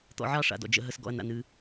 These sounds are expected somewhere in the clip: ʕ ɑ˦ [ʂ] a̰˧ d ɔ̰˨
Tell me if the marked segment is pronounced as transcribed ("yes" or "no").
yes